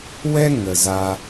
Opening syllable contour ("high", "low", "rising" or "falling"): high